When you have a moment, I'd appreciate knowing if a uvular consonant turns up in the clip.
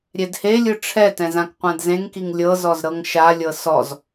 yes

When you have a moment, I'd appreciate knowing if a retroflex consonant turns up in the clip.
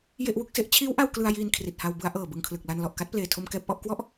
no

